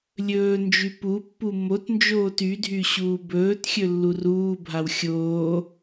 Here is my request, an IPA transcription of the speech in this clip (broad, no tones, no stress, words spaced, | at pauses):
lʲɵːnd͡ʒy pupːu motnd͡ʒoːt ydʱy ɕuːbɵːtxʲɵ lːuruːbʱaw xʲoː